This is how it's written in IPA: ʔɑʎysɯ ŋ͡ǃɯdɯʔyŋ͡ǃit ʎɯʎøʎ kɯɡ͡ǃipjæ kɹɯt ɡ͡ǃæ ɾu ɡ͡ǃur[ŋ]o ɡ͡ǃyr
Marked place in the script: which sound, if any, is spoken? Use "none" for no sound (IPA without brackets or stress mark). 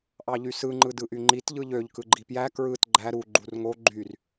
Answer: ŋ